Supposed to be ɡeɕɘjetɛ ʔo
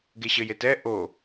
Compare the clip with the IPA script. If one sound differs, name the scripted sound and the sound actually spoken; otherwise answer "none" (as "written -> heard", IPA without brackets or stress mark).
none